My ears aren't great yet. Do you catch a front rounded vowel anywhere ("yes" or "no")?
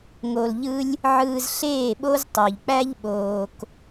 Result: yes